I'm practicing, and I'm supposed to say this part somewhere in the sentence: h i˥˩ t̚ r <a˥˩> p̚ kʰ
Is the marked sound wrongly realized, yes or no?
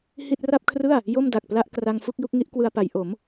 no